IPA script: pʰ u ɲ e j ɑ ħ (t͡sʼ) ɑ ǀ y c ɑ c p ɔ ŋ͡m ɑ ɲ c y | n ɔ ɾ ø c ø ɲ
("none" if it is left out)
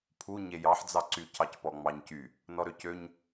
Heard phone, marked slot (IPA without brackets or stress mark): d͡z